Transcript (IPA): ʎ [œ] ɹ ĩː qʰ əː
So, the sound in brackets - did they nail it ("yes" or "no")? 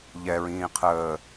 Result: no